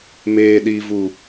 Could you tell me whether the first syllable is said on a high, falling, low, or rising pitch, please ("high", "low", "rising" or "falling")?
low